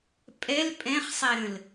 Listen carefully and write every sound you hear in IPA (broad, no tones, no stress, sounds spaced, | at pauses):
pʼ ɛ l pʼ ɛ̃ χ sˤ ɛ ɾ ə̃ l